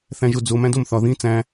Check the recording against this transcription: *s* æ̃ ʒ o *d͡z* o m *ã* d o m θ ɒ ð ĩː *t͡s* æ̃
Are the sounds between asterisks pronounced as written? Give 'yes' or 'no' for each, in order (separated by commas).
no, yes, no, yes